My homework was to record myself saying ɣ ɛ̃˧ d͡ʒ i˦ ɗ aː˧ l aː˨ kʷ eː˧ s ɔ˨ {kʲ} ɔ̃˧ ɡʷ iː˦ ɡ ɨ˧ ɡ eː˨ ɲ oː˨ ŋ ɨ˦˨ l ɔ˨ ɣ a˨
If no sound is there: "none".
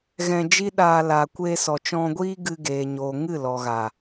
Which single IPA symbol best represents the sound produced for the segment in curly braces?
t͡ʃ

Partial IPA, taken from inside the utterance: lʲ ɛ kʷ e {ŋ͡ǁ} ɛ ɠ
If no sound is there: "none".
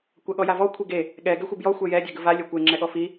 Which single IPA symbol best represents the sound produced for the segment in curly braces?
ŋ͡ǁ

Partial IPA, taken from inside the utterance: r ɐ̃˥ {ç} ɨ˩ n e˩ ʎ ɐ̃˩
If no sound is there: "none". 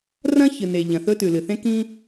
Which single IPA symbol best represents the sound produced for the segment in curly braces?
ç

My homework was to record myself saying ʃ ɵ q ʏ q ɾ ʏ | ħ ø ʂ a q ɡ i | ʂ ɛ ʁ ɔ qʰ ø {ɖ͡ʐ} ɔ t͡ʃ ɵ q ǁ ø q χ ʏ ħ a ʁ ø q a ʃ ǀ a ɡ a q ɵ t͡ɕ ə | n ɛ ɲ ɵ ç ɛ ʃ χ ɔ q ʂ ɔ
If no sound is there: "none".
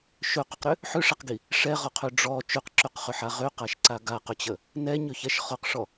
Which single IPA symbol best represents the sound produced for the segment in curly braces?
ɖ͡ʐ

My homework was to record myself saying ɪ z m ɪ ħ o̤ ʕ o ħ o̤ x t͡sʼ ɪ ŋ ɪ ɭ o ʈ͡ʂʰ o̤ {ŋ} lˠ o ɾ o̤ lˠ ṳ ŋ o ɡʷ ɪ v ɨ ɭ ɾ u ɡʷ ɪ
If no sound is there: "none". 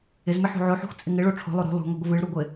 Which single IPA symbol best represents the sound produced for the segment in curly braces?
none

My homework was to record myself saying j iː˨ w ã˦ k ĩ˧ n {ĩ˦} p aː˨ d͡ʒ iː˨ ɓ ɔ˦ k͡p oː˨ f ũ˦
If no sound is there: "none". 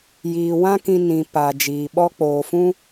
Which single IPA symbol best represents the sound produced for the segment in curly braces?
ĩ˨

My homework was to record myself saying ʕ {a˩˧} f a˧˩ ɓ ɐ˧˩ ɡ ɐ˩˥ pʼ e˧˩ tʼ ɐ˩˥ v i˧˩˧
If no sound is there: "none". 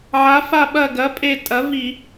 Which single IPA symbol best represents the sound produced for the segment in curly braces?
a˩˧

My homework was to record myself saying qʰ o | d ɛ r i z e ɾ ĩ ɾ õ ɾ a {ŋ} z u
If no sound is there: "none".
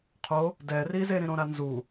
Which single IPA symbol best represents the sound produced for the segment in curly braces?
n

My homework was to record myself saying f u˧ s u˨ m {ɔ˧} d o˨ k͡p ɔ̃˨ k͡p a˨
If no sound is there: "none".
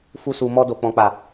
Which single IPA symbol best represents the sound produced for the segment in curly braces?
ɔ˧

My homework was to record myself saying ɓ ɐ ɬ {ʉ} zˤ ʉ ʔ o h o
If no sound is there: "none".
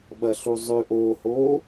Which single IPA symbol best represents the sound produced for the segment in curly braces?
u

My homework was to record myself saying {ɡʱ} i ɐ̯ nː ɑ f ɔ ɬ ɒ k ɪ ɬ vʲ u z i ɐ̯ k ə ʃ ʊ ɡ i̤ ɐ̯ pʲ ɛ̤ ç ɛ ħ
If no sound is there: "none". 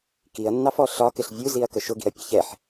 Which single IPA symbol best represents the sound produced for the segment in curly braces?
k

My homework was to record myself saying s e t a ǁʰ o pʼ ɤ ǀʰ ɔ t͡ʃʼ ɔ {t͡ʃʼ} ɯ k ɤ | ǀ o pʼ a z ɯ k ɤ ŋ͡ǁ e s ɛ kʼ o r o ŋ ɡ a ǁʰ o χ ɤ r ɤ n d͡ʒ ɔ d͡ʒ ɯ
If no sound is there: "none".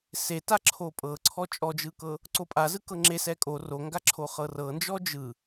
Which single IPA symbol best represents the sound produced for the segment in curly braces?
d͡ʒ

